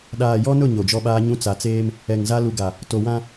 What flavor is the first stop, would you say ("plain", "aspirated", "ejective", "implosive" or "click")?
implosive